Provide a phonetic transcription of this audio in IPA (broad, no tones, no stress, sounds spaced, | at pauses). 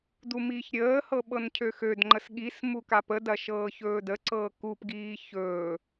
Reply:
d u m iː ç ɾʲ əː h ɤ ɓ ɤ n cʰ ø x ø d ŋ͡ǃ ə s ɠ i s m u k a p ə d ɐ ʃ ɤː ç ɵː d ə ǀ ɤː k u p ɡ iː ç ɵː